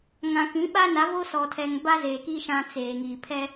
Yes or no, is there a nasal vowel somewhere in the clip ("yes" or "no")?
yes